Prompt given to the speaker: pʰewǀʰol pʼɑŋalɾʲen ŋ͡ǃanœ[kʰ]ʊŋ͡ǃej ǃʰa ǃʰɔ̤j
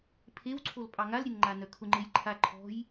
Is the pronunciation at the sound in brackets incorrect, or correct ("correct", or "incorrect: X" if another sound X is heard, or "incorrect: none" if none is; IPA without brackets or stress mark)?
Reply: correct